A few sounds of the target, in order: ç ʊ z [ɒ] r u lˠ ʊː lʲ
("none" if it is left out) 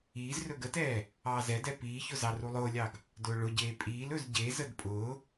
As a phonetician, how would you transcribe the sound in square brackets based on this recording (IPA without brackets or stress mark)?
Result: ɑ